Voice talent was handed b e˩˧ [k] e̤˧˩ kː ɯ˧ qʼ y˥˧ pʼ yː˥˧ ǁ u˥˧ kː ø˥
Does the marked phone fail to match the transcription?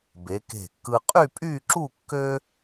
no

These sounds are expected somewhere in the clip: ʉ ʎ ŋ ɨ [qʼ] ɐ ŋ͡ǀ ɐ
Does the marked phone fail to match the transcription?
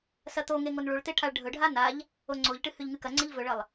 yes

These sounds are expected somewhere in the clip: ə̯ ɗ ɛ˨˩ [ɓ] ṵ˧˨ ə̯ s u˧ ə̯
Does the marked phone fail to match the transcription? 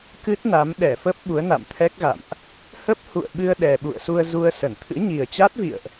no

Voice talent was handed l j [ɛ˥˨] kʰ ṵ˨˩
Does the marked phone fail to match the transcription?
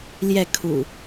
no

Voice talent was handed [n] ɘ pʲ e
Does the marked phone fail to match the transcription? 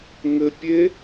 yes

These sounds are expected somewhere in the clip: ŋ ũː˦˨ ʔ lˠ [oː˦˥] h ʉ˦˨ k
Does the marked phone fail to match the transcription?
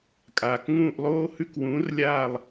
no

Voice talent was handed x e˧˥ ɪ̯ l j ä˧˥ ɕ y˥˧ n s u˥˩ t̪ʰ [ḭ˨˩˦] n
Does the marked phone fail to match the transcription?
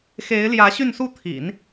no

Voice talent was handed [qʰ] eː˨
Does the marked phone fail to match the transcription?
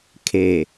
yes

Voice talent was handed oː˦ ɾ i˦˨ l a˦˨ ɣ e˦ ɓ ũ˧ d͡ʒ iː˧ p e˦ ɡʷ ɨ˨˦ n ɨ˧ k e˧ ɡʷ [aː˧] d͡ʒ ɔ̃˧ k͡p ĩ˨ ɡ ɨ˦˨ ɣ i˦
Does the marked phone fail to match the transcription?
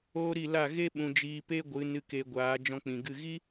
yes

